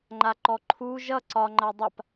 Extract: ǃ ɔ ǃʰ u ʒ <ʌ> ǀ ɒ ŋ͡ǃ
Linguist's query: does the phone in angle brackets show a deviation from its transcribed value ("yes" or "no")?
no